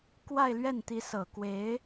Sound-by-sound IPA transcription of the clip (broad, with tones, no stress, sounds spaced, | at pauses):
k w a˥˧ ɪ̯ l ɥ ɛ˥˩ n t̪ i˧˥ s ɤ˨˩ k w e˧˥ ɪ̯